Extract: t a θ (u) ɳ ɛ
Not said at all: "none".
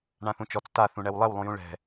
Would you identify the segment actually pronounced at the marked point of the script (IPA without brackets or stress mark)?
ũ